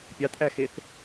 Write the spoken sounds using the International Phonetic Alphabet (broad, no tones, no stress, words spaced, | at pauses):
pʲɑtʔæxeθ